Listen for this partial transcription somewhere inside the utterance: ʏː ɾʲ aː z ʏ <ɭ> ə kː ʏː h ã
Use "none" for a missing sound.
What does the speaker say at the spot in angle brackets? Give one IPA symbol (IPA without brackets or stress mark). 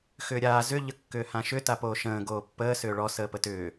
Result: ʎ